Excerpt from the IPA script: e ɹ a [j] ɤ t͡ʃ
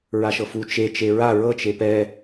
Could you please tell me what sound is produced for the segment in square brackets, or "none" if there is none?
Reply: ɹ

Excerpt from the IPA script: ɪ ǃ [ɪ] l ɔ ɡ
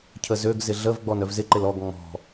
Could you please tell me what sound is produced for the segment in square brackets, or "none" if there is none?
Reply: ɪ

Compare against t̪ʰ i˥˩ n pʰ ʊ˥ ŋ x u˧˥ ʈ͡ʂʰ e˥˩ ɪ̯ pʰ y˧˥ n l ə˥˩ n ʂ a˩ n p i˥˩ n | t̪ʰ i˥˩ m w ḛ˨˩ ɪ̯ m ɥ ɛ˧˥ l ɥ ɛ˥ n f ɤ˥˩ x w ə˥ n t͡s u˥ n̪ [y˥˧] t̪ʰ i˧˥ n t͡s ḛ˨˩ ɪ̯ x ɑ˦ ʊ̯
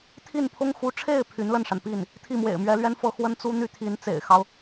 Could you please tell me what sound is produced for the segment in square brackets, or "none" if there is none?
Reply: y˥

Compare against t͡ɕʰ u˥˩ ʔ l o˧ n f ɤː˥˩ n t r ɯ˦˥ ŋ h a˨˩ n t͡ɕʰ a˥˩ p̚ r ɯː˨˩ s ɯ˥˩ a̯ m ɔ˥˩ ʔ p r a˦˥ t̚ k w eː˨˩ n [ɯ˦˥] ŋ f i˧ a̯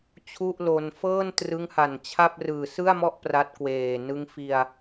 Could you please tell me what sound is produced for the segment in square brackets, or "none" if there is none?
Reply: ɯ˦˥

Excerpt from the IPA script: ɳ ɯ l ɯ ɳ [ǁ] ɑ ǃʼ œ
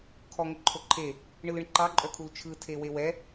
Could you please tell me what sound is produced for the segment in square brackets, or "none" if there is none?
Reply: ǃ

